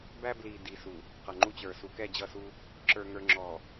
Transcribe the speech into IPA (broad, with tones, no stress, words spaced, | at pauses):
bæ˦bli˨ di˨su˨ | qʌ˨ŋ͡ǃu˦t͡ɕə˞˨ su˨kɛ˦˨d͡ʑʌ˦˨su˦ | ǁə˞˨ŋə˞˨ ŋ͡ǁɔ˨